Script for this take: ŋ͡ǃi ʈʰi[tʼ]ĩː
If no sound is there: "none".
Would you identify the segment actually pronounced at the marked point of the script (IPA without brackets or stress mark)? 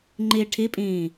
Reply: pʼ